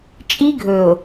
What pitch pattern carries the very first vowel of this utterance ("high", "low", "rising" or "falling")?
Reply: high